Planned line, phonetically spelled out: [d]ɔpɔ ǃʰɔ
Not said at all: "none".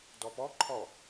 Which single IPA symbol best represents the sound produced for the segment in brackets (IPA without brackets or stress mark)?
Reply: d